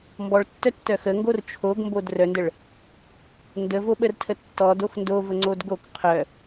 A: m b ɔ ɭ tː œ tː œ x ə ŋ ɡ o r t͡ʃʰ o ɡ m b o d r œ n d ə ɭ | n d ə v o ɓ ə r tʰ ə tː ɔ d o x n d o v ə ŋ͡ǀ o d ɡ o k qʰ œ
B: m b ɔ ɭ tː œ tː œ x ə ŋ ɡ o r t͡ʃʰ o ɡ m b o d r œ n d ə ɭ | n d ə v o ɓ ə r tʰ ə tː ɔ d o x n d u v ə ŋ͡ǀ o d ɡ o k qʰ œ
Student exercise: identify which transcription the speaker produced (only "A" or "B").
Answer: A